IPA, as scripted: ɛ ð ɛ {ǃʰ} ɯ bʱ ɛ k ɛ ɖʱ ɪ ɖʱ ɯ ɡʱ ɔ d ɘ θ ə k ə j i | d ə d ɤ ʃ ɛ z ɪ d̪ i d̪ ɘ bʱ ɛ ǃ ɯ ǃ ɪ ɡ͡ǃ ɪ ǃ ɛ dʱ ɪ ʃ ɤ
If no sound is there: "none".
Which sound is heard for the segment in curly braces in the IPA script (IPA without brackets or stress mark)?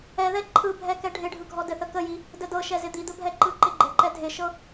ǃʰ